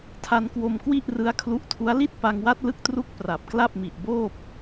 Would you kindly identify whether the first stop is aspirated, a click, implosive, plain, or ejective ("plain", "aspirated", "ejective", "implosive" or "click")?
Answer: aspirated